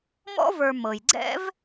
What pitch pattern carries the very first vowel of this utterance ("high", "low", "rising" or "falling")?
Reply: high